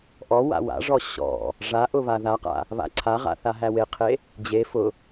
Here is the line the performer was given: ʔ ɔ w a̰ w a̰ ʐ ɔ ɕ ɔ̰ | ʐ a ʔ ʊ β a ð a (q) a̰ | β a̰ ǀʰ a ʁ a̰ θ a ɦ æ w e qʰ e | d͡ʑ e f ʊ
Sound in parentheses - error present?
no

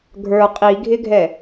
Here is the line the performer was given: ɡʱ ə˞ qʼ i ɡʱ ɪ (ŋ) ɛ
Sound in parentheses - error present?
yes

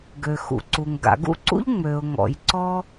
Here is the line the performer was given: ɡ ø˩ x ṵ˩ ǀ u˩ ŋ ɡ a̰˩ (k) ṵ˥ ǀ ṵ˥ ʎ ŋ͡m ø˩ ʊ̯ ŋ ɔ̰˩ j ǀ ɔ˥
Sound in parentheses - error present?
yes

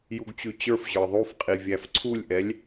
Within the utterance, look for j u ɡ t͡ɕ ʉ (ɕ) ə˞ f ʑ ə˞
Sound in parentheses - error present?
yes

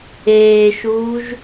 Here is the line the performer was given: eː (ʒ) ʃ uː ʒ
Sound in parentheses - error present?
yes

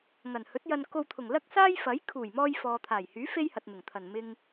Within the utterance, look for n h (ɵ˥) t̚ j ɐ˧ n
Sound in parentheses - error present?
yes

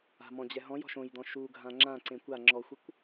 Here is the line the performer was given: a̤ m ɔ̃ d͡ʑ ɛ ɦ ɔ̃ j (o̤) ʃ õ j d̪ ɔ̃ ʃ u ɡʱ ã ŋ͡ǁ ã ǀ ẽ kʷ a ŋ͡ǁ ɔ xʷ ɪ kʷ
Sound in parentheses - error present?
yes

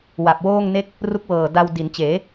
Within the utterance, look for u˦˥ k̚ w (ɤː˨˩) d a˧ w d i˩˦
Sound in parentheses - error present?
no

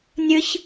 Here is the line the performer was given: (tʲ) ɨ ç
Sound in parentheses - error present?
yes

